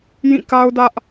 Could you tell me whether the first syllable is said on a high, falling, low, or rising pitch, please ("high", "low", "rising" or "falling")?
falling